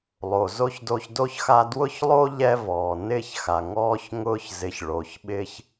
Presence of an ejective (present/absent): absent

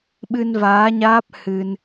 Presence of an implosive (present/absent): present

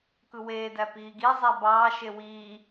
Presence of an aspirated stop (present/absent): absent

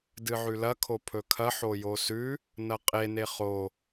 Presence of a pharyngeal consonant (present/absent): present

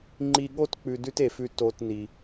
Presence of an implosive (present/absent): present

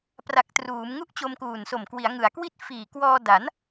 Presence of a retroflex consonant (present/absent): absent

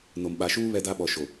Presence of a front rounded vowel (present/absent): absent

